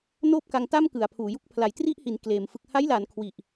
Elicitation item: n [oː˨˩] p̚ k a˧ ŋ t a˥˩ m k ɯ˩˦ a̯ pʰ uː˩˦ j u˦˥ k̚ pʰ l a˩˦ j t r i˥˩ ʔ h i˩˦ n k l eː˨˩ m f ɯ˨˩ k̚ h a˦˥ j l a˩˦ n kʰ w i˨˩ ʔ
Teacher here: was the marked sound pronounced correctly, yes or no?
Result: no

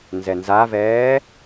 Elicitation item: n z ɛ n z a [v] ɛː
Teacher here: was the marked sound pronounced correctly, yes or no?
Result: yes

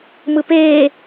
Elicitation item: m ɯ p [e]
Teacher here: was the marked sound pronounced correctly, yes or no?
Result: no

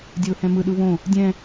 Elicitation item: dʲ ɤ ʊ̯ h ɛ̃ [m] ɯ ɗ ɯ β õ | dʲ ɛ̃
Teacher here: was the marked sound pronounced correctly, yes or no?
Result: yes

